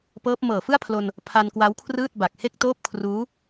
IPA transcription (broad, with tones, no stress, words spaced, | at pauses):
pɤː˦˥p̚ mɤː˨˩fɯ˥˩a̯pʰlo˧n | pʰa˧nkwa˦˥wkʰrɯː˥˩t̚ ba˨˩k̚he˥˩k̚toː˥˩p̚ kʰruː˦˥